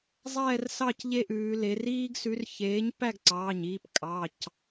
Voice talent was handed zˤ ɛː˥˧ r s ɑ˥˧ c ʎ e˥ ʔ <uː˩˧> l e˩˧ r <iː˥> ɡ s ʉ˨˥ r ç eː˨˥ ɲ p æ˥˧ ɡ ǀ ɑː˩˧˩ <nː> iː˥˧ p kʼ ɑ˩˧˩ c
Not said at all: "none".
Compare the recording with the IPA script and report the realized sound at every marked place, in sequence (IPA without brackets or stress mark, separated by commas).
ʉː˩˧, iː˥, ɲ